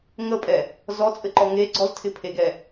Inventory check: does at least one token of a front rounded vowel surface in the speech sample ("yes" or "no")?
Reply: no